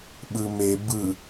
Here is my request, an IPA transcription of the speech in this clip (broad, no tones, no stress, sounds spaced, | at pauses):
ɓ ɯ m e b ɯ